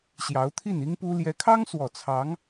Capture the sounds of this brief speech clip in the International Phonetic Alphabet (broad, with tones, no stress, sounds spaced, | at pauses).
ɕ j ɑ˧˥ ʊ̯ t̪ʰ i˥˩ n i˥ ŋ p u˥ l j ɛ˧˥ kʰ ɑ˥ ŋ s w ɔ˨˩ t͡sʰ ɑ˧˥ ŋ